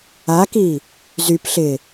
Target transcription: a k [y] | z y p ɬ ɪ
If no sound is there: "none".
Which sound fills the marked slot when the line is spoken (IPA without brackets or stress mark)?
i